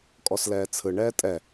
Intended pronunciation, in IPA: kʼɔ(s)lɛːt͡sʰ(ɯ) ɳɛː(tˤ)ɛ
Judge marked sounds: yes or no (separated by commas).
yes, yes, no